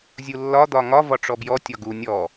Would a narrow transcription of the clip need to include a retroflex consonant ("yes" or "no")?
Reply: yes